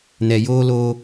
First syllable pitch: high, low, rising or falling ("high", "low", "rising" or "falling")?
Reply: low